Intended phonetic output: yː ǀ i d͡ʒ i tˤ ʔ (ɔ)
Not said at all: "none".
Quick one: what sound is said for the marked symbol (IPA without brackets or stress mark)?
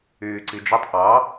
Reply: ɑ